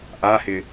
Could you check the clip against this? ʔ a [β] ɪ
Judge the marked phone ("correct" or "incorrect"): incorrect